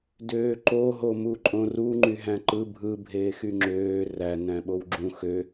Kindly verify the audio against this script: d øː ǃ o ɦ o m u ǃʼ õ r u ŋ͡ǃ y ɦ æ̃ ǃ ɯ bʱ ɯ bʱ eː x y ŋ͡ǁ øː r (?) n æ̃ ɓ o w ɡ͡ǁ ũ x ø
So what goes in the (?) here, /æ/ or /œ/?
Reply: æ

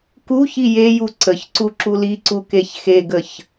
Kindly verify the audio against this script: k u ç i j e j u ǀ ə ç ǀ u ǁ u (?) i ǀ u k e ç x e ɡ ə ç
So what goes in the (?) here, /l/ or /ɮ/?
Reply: l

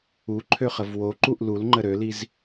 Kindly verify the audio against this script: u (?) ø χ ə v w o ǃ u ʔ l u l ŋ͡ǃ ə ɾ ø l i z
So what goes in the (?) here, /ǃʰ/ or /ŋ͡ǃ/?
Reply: ǃʰ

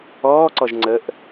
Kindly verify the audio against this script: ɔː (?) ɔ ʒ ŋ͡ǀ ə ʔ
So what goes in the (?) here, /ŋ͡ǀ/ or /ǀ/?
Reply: ǀ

